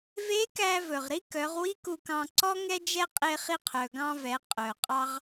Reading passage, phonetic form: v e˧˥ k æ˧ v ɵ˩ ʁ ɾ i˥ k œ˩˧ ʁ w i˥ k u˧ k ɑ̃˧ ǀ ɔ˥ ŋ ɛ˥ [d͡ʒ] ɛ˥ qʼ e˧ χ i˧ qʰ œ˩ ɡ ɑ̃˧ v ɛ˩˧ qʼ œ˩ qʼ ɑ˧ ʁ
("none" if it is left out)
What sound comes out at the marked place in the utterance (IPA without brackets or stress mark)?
d͡ʒ